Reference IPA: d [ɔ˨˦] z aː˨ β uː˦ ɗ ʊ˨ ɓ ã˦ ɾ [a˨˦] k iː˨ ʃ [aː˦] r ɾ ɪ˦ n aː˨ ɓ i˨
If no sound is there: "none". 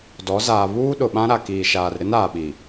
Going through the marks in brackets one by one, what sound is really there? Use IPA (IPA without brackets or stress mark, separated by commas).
ɔ˨˦, a˨, aː˨